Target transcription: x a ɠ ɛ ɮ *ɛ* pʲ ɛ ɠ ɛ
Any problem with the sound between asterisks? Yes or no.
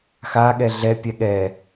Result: no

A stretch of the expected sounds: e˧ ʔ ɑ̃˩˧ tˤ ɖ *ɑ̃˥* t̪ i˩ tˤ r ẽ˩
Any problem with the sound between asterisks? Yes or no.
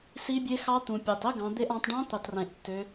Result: yes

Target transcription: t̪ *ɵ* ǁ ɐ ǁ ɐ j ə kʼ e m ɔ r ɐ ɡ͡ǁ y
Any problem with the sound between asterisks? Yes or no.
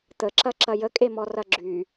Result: yes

